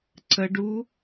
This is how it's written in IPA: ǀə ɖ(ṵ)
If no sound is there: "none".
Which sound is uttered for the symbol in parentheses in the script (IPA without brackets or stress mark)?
u